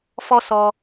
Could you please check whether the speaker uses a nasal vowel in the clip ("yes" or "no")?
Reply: no